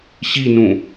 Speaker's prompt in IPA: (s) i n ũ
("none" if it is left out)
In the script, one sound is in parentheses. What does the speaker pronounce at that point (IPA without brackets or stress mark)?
ɕ